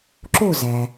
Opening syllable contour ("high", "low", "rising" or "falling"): falling